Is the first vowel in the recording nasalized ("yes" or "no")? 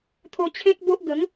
no